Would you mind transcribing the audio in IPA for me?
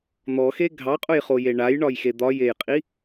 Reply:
n̪ɔxe ɡʱɑqʼʊjχoje ɳajɳɒjxe d̪ɒjejqʼi

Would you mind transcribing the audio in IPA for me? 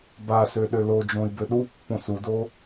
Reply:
basø ɗølod͡ʒõi̯ bøɗupːõ sudo

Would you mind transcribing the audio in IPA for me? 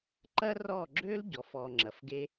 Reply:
ǃɐ˦rɔ˦˨ɡ͡ǁø˦l ɟɔ˨˦fɔː˧ŋ͡ǁɐ˨˦fɡe˦

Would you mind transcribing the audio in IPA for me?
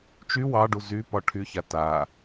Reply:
t͡ʃy wɑɖu zypɒ ʈʰyça ta

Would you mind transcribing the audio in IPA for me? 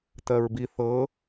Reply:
tɜɹbi θɤ

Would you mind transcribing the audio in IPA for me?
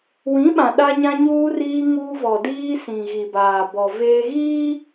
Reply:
wĩ˨˦ɓã˨ ɗa˦ɲã˦ɲuː˦ riː˦ŋuː˦ vɔ˨diː˦sĩ˨ ɣi˨baː˨bɔ˨ veː˦ ɣiː˦

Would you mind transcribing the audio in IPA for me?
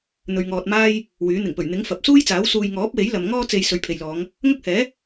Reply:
n̪ɵ˨ɥŋɔː˨t̚maː˥j | wyː˨˥ n̪ɪ˨˩ŋ pɵ˨˩ɥn̪ɪ˨˥ŋ fɐ˨p̚ suː˥jt͡saː˨˥w suː˧j ŋɔː˨˥p̚we˨˥j lɐ˨mŋɔː˥ t͡se˧j sɵ˨˧ɥpʰe˨jlɔː˨˧ŋ | ŋɐ˥k̚ hɛː˨˥

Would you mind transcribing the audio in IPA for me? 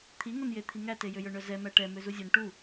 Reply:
t̪ʰiŋonje t̪ʰiŋæte jøjœɳœzɛ mæʈɛ møzuzʲœn ʈu

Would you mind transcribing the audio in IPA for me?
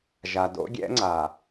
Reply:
ʒa˨do̰˦ɡʲɛ̰˦ŋ͡ǀa˨

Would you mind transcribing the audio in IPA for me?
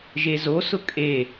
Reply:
ʒezosʊ kʼe

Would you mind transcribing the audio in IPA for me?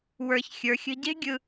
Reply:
wə˞˧ç xʲə˞˨xʲə̤˧ɟe̤˦ɡʲɯ˧

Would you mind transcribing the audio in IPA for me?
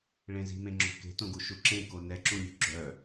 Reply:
ɭẽzi̤mẽŋ͡ǁo̤ ke̤tõɡu ʃuǁẽ konɛǁũlʲṳ ɡ͡ǁœ

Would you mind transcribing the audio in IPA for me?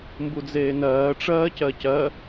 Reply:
mbud͡zeːnɜː ʈ͡ʂɜːcɜcɜ

